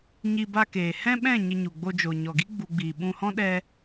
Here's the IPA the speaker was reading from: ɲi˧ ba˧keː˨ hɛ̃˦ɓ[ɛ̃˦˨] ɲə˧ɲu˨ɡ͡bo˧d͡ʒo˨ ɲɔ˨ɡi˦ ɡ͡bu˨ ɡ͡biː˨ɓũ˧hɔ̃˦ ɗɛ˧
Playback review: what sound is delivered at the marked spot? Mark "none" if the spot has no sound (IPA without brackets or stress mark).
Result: ɛ̃˦˨